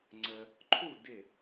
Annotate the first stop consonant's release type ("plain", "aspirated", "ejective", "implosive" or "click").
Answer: click